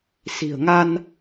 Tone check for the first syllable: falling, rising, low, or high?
low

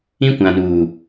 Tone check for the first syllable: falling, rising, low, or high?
high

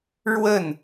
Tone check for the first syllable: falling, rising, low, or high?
falling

